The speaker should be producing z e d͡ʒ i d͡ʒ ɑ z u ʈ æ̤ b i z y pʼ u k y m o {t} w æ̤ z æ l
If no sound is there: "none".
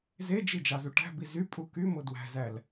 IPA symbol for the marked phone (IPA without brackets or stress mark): d